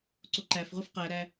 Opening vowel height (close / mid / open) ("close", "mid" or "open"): mid